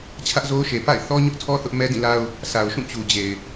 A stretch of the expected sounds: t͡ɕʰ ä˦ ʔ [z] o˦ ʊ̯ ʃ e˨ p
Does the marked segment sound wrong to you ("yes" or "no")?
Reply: no